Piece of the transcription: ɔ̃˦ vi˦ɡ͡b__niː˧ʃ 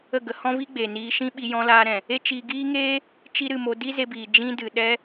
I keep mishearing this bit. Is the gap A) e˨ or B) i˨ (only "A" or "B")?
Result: A